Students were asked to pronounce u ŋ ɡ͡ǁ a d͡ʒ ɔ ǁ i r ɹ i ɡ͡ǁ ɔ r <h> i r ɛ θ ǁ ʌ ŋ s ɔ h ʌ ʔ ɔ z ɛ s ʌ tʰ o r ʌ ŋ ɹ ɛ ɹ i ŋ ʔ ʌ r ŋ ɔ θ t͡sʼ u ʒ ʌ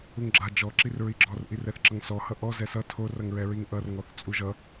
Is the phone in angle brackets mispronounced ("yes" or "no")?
yes